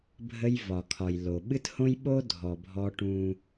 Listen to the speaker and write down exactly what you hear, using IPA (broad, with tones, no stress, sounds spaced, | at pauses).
bʱ ə˦ j v ɒ˨ kʰ ɒ˨ j l o˨ ɓ ɨ˦ t h õ˦ j ɓ o˦ dʱ ɔ˨ bʱ ɔ˦ ʈ ũ˦